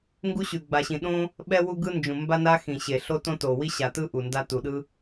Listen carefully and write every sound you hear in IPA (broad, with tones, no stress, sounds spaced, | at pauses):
ŋ ɡ u˧ ɕ ʉ˩ ɡ͡b a˩ ɕ ĩ˩ ɗ õ˧ | ɓ ɛ˧ w u˧ ɡ ɯ˧ n d͡ʒ ũ˩ m b a˧ n a˧ x ĩ˩ ɕ e˩ ɬ o˧ t õ˧ t o˩ w i˧ ɕ a˩ t ɯ˧ ʔ u˩ n d a˧ t u˩ ɗ ɯ˧